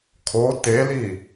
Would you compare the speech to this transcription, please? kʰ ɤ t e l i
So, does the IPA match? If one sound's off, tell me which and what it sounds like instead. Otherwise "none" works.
ɤ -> o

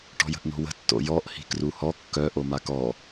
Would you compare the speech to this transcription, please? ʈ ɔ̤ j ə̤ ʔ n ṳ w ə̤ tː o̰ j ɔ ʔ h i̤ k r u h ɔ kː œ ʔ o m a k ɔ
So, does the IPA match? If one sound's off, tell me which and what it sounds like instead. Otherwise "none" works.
ṳ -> o̤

